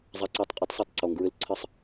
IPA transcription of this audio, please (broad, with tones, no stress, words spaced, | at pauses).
zˤa˨ǀɔ˨tˤqʼø˦tˤ sˤa˦tˤǀo˨ŋɡɹʏ˦l ǀʰə˦sˤ